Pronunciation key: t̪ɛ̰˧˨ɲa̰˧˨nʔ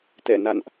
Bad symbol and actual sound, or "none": ɲ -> n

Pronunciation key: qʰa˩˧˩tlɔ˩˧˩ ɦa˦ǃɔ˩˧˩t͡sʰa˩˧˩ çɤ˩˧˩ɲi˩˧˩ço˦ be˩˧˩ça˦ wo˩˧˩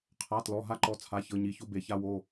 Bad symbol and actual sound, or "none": none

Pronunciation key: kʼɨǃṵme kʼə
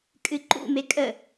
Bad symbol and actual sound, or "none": none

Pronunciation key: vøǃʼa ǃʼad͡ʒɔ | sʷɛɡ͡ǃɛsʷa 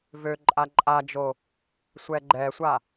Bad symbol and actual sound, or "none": ɔ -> o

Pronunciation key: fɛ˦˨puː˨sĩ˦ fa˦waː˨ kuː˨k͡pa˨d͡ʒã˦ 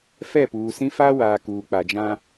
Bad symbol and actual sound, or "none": none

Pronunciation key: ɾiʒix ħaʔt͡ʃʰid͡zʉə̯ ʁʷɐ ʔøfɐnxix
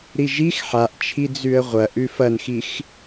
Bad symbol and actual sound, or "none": ø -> ʉ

